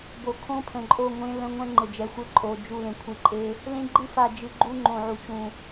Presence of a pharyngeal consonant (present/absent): present